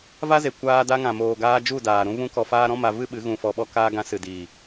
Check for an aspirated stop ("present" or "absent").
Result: absent